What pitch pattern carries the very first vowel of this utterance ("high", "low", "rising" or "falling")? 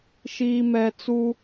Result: low